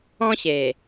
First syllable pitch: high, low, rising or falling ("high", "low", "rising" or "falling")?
high